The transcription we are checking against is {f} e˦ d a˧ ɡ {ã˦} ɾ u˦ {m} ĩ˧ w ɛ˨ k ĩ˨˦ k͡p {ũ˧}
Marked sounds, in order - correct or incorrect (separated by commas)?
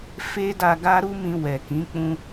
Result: correct, incorrect, correct, incorrect